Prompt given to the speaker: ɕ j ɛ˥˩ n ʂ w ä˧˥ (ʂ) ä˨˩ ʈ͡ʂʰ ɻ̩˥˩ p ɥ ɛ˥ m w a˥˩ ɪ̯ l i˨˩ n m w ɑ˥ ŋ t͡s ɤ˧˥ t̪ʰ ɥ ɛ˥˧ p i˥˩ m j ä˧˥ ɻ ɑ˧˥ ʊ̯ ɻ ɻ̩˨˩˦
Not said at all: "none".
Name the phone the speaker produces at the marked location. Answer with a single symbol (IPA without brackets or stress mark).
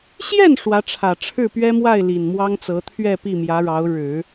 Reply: ʈ͡ʂʰ